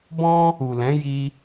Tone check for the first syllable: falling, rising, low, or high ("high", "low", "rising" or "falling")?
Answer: high